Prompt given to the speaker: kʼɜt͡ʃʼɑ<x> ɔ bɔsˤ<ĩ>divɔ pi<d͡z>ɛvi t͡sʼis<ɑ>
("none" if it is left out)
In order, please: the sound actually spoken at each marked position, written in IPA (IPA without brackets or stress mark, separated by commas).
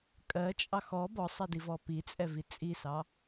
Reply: x, i, t͡sʼ, ɑ